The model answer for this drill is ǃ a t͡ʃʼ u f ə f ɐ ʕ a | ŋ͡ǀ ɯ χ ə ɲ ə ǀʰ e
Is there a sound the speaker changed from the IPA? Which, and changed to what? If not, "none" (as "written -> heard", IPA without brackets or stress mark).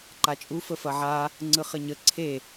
none